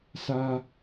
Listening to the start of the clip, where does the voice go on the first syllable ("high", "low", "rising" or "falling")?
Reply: high